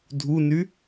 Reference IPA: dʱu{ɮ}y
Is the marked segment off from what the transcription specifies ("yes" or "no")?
yes